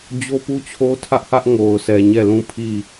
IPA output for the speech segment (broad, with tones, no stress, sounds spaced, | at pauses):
d͡ʑ o˦ p u˦ t͡ɕʰ o˦ tʰ ä˦ ʔ h ä˦ ʔ ŋ o˨ ʊ̯ s ɛ˨ ɲ ɛ˦˨ l ũ˦˨ pʰ i˦˨